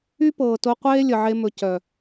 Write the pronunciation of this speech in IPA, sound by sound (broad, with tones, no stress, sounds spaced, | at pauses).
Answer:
y˦ p ɤː˨ t o˧ qʷ eː˦ lʲ ə˨ ʕ e˧ m ɵ˨ c œ˨